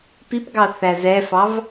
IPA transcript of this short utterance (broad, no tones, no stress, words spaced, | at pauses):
pipɡɑθæ zɛfɑv